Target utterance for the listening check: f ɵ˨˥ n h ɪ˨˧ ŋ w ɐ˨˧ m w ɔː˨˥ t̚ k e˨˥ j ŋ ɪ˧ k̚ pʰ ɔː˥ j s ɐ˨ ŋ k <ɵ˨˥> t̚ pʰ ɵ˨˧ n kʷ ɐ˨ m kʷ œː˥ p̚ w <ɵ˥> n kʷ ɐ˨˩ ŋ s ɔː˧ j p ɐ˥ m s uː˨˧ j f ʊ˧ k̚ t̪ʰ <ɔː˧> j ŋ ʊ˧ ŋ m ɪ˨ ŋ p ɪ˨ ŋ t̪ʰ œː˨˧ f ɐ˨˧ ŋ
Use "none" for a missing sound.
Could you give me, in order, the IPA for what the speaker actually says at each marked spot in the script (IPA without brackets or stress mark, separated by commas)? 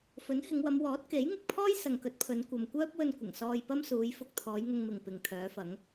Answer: ɵ˨˥, ɵ˧, ɔː˨˧